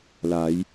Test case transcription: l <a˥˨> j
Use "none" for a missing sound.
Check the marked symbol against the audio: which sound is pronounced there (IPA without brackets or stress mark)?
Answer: a˩˧